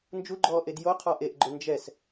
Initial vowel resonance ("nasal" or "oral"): oral